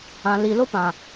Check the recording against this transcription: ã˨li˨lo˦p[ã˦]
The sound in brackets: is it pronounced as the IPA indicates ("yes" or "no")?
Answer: no